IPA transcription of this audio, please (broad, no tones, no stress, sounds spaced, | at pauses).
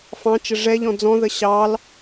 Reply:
f ɑ̃ t͡ʃ ə ʐ ɛ ʎ ɔ̃ d͡z ɔ̃ ð ə ɕ ɑ l